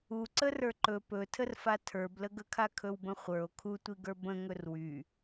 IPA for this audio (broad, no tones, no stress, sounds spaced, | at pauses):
u ǀ ə r ə˞ ǃ ɵ p ɵ tʰ ə r f a tʰ ə˞ b l ə ɡ ə kʰ a kʰ ɵ w b ə̃ χʷ ə˞ o̯ kʰ u tʷ i ɡ ə˞ b ə̃ ŋ ɵ r w y